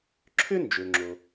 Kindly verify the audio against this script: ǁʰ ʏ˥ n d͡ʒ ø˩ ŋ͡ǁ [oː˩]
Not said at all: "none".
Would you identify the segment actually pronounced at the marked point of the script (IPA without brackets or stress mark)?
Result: o˩